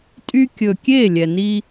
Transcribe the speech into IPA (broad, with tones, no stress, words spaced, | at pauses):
tʼy˦ kʲɵ˨kʲe˦˨ lʲɛ˨ni˦